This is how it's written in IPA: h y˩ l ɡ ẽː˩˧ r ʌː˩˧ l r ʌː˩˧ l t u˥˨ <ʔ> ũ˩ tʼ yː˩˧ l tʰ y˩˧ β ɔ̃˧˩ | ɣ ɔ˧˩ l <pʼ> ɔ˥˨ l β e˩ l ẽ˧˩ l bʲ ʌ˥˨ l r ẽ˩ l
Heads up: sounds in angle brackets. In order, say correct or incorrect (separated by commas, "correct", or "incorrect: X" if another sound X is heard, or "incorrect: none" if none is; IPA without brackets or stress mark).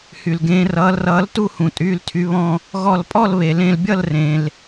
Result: incorrect: h, correct